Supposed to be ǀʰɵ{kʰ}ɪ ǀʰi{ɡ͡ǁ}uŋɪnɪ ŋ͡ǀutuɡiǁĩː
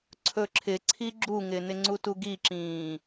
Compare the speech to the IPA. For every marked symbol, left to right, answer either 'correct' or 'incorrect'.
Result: incorrect, correct

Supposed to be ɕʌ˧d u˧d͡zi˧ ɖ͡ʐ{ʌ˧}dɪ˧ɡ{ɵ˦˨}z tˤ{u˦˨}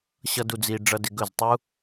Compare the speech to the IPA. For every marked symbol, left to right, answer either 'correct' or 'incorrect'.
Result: correct, correct, incorrect

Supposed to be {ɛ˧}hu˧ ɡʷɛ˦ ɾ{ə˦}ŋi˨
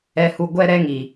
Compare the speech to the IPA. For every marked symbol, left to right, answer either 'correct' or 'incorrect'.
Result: correct, incorrect

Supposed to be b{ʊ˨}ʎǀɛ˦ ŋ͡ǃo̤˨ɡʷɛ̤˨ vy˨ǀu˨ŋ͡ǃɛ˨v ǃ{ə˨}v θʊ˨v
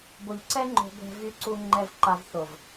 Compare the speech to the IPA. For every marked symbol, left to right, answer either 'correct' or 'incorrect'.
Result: correct, incorrect

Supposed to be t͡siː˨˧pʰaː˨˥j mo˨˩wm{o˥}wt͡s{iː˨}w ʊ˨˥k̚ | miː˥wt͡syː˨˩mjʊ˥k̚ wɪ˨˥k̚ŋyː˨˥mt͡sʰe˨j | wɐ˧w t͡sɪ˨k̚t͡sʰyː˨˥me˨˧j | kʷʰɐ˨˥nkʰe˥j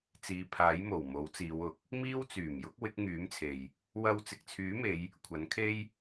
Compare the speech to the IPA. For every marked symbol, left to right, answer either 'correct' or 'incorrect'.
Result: incorrect, incorrect

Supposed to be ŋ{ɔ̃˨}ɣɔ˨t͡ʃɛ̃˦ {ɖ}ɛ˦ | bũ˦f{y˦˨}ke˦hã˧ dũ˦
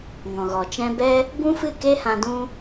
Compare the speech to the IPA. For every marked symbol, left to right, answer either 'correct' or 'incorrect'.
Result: correct, incorrect, incorrect

